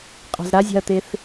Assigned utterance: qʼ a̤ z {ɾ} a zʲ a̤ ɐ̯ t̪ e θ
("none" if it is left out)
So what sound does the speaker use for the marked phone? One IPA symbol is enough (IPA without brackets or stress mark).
ɾ